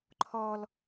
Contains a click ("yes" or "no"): yes